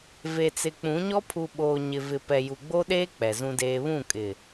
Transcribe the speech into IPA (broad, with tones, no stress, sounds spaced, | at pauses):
v e˨ t͡s ɪ˨ k͡p ũ˨˦ ɲ ɔ˦ pʰ u˨ ɓ oː˨ ɲ ɪ˨ v ɪ˨ p ɛ˨ j u˨ ɡ͡b o˦ ɗ eː˦ k͡p ɛ˨ z ũ˦ d eː˦ β ũ˦˨ kʼ ɪ˨